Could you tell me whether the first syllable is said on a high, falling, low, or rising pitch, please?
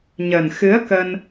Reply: low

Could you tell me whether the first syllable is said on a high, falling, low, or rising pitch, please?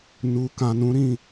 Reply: low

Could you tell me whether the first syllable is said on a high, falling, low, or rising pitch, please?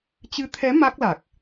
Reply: rising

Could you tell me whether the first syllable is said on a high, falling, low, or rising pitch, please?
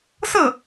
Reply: falling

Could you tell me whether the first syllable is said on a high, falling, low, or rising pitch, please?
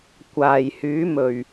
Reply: low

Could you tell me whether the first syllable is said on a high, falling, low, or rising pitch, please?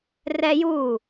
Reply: high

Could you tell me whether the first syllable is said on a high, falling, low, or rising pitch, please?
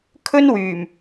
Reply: high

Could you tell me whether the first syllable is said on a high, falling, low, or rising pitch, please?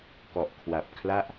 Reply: low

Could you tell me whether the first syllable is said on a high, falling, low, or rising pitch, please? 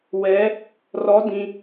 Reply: rising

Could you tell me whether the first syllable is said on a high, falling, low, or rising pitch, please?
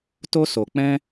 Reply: high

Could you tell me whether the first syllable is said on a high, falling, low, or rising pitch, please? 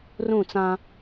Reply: falling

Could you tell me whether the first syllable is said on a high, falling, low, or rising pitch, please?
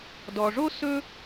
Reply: low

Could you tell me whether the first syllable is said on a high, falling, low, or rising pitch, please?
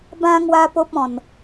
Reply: high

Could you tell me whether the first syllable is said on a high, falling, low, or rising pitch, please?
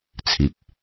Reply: low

